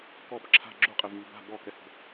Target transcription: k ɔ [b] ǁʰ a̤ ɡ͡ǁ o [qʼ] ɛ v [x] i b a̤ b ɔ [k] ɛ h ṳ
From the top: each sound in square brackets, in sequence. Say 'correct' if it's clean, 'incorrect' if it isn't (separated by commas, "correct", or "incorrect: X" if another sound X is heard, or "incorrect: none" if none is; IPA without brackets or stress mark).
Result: correct, correct, incorrect: ŋ, correct